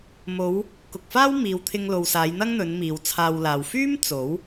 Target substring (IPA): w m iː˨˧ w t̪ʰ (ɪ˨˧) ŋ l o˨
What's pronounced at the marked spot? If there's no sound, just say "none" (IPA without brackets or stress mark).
ɪ˧